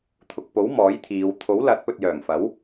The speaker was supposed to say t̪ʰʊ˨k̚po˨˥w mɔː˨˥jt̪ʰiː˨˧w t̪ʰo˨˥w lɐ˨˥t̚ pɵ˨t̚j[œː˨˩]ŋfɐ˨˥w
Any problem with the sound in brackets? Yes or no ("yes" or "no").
no